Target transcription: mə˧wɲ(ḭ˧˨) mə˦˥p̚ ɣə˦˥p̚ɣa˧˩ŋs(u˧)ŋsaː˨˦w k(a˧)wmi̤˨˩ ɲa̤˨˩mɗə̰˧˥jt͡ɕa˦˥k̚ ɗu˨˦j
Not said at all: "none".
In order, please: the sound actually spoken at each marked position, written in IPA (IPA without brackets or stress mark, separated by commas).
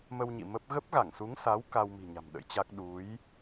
ḭ˧˨, u˨˦, a˧